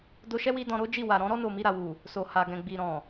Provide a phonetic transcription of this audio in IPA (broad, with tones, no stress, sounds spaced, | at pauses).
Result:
d o˧ ʃ ɛ˦ w i˧ d ɔ̃˧ ɾ o˦ d͡ʒ i˦˨ w a˨ ɾ ɔ̃˨˦ ɾ ɔ˦ n o˦˨ m i˧ ɾ a˨ w u˨ | s o˨ h a˨ ɡ ɛ̃˨ ɡ͡b i˨ ɾ ɔ̃˨